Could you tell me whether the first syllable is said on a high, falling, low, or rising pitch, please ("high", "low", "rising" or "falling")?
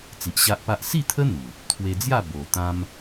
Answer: low